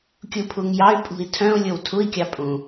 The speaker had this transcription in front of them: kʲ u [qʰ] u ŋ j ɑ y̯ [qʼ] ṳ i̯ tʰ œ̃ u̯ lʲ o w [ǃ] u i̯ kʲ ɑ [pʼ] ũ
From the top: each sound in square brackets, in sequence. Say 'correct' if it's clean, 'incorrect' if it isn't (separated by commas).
incorrect, incorrect, incorrect, correct